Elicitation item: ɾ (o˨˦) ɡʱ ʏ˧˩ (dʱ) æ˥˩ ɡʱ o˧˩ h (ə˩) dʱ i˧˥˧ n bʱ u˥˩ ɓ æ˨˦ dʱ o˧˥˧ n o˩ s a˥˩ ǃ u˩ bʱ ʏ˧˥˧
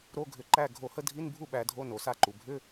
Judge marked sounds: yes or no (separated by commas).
no, no, no